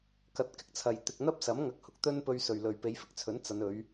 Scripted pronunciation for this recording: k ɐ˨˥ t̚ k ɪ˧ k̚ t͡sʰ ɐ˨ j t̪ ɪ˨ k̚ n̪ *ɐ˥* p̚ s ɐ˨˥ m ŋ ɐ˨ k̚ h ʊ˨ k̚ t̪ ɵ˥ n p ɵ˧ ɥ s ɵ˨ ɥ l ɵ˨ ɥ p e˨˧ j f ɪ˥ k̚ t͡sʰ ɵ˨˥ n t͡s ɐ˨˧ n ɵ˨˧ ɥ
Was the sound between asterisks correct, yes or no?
yes